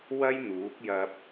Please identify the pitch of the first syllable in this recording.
high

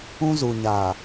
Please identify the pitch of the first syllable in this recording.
high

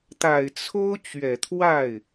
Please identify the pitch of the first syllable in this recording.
low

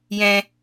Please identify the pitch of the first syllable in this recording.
high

